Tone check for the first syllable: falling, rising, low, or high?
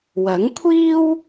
rising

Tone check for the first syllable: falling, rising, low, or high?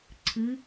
rising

